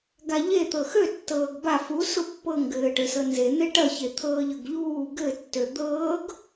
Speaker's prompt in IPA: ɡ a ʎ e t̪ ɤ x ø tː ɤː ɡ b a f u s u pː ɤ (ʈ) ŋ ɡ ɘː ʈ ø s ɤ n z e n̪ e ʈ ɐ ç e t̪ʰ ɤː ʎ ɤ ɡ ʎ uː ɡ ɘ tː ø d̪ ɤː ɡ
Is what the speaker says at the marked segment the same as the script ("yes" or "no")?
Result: no